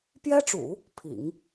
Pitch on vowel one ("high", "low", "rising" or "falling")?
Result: high